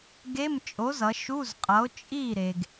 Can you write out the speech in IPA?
ɡe˧˥˧mt͡ʃʼo˨˥zʌ˩˧ ʃu˧˥˧zqʼʌ˨˥o̯ t͡ʃʼi˥˩ɾe˩ɡ

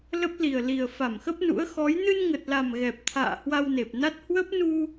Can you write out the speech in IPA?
lə˦˥p̚li˨˩ə̯li˨˩ə̯ fa˧˩mxə˦˥p̚nṵ˧˥ə̯ xɔ˨˦j nɨ˧nŋə˨˩t̚la˨˩m ɣɛ˨˩p̚t̪ʰa̰ː˧˨ hwa˧wne˨˩p̚na˦˥t̚ hwə˦˥p̚nu˧

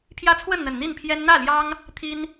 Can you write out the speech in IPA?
pʰjä˦t͡sʰwə˥˨nn̪ə˨˩n n̪i˥˨npʰjɛ˦n n̪ä˥˨ljɑ˦ŋ | t̪ʰi˦n

